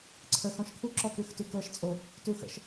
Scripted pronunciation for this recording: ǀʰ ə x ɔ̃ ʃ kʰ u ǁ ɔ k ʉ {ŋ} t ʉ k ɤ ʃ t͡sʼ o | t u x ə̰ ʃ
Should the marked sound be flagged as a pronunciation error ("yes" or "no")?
yes